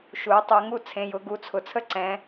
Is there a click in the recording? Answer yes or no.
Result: yes